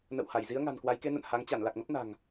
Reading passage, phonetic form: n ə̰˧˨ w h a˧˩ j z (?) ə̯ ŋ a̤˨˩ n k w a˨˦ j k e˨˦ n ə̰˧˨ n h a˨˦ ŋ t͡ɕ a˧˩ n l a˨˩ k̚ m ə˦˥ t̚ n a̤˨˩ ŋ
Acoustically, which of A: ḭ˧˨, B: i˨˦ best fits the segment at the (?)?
B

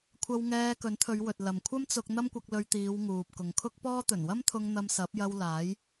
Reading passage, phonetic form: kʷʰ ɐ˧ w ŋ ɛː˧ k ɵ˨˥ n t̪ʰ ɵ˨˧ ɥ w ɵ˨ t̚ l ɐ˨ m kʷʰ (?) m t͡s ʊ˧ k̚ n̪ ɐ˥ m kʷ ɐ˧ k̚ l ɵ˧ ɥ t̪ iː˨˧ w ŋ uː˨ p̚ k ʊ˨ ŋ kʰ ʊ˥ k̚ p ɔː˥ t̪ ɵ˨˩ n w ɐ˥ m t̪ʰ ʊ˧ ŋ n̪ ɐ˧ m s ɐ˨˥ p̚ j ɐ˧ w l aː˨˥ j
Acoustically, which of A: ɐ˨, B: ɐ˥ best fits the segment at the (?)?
B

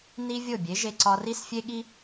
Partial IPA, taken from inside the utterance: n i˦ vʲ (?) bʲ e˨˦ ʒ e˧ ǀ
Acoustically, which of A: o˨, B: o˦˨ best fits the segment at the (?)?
B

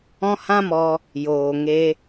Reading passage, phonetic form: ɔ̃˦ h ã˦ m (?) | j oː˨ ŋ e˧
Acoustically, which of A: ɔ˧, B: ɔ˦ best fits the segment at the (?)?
A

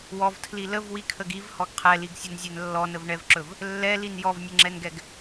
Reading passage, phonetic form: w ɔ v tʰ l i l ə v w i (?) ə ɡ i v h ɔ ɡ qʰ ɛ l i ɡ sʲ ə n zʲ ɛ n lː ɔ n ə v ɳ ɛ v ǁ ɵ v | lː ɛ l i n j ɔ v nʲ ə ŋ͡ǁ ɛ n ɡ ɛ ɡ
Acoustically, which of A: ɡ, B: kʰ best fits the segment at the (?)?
B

